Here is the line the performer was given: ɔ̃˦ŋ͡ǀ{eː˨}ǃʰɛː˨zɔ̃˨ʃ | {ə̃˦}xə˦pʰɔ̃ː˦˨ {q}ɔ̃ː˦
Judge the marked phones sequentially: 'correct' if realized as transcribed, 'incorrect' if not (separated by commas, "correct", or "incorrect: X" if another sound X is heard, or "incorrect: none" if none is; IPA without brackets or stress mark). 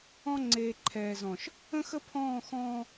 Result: correct, correct, incorrect: x